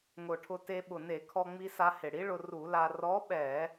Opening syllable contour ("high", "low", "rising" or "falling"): low